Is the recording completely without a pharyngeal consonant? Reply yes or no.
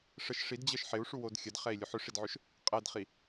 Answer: no